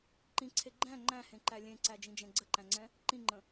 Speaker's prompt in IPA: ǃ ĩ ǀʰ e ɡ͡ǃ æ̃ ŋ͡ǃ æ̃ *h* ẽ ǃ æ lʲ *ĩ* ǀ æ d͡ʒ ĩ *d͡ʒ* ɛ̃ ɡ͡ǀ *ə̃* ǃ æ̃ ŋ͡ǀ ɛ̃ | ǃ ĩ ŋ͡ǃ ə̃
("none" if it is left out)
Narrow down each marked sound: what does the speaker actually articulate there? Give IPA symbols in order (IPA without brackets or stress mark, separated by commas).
h, ẽ, d͡ʒ, ə